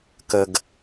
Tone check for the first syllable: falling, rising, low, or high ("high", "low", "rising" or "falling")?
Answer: low